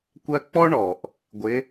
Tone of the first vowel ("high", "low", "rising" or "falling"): high